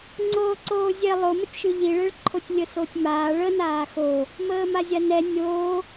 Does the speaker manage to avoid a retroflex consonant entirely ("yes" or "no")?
no